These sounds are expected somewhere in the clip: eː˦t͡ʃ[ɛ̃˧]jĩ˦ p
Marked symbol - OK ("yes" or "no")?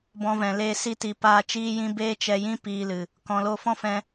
no